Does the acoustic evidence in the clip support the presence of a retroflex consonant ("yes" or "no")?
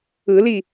no